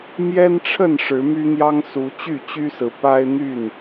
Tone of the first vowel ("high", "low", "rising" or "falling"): high